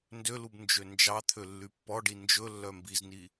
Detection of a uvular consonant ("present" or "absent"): absent